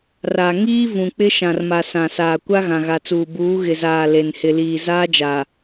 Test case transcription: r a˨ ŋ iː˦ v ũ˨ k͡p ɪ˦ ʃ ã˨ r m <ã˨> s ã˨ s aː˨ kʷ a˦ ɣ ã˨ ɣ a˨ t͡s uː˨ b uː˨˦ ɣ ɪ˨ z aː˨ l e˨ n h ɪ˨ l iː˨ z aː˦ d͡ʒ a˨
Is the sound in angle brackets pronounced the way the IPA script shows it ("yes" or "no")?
no